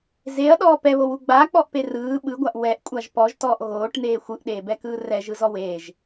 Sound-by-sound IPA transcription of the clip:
z e ɐ̯ ɗ ɔː p ɛ β o w u ɡ͡b aː k͡p ɔ ʔ p e r ɯː ɓ ɯ ɡʷ a ʔ w ɛ ʔ kʷʼ a ʒ p ɔ ʒ t ɔː ʔ ɣ oː ʈ n̪ eː xʷ ɯ ʔ ɗ eː b ɛ k ɯː r ɛ ʒ ɯ z ɔ w eː ʒ

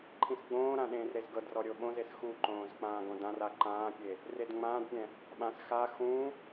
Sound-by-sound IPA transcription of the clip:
ǃʰ ĩ s ɡ͡b õː ɾ ã ɗ ẽː r ɾ e z ɡ ɤ d r ɔ ɾʲ o ɓ õ z e s x u ǃ õː z k͡p ãː ɡ õ d ã r a ǃ ãː pʲ e | r e d ŋ͡m ãː d pʲ ɛ̃ | ɓ ã s x a x ũ

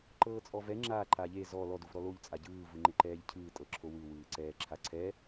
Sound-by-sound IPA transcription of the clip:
ǃ ɤː t͡sʼ ɔ v ɛ ŋ͡ǁ a ǃ a ʎ e z ɔ l ɔ d u v ɾ ɔ l o ʎ t͡sʼ a ɟ ɯː v ɯ ŋ͡ǃ e ǃ ɛː ʎ cʰ ɯː tʼ ɤ ǁʰ o w ɯ w ɯː ǀ ɛː ǁʰ a ǀʰ ɛ

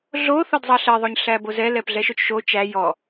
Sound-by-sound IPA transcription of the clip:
ɮ o θ ɔ d zˤ ɑ ɬ ɛ ðˤ o ɲ ɬ æ b o z ɛ l ɛ p ɮ ɛ ʃ o t͡ʃ ʃ o t͡ʃ æ j ɔ

